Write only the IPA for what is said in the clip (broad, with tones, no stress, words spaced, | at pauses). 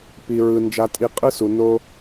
pi˨ɹɯ˨ nd͡ʒa˨tʼi˨ qʼɯ˧su˨ no˧